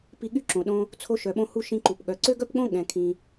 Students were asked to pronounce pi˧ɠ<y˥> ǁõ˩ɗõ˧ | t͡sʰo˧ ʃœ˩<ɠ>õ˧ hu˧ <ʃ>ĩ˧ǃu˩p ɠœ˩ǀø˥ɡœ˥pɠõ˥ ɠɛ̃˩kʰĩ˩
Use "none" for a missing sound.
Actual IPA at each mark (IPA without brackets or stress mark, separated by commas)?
y˥, ɓ, ʃ